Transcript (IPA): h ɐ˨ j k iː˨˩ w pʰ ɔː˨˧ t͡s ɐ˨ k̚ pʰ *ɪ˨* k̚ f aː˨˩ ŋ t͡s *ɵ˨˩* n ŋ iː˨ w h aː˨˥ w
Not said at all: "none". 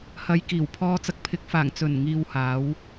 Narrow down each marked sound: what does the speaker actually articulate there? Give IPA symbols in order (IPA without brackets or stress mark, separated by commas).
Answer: ɪ˨˥, ɵ˨˩